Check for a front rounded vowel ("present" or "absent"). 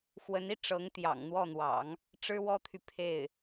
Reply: present